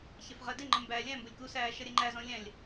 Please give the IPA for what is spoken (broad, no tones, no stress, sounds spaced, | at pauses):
ç ɛ f ʁ ɜ d ɪ ŋ͡ǃ ə̃ m b æː lʲ æ̃ m b ʊ lʲ k u s æː ʃ ʌ ɾʲ ɛ ŋ͡ǃ æ z ɔ̃ lʲ æ̃ lʲ